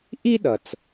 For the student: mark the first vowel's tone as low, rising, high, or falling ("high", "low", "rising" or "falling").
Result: high